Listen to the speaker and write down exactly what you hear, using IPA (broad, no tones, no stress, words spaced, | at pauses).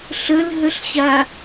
ɬəlɦəɬɕa